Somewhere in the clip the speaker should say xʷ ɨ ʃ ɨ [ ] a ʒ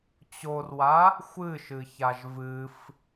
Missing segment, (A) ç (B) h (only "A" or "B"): A